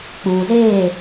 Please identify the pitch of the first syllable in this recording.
low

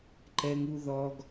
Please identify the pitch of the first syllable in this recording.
high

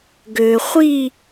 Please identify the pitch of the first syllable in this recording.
low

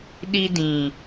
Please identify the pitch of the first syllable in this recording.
high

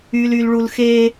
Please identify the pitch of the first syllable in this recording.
low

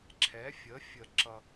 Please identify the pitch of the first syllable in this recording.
rising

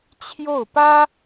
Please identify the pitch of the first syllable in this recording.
falling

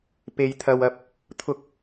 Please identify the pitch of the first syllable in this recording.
high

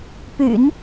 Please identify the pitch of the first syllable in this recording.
low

